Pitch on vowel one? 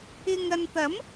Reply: low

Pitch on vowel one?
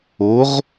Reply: rising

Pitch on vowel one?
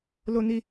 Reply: high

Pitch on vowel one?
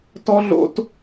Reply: high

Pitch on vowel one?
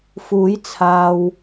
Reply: rising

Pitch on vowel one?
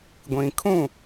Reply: low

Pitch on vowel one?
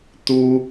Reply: high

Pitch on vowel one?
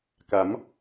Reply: rising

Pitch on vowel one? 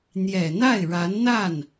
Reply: low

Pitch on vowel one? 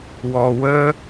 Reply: low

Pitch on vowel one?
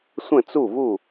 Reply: falling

